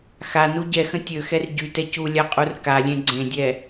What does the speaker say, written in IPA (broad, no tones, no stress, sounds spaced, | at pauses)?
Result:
x a n u ɟ ɛ x ə̃ tʲ ø x ɛ r ɟ y t ɛ c u lʲ a qʼ u r k a lʲ ẽ ɡ͡ǀ ẽ dʲ ɛ